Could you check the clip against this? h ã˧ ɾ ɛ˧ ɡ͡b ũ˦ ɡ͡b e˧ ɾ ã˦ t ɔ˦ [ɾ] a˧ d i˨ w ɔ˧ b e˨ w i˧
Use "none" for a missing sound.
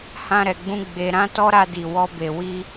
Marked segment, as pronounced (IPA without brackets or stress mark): ɾ